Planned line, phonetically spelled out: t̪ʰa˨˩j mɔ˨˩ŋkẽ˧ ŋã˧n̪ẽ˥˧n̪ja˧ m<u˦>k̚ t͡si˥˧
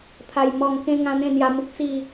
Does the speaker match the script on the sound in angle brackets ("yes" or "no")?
yes